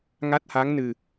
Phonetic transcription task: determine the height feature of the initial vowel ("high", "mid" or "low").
low